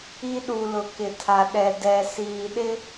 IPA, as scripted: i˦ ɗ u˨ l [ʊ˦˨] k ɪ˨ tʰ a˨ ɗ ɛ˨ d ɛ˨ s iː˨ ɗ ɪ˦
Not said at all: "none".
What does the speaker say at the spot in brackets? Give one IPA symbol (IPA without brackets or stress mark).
ʊ˨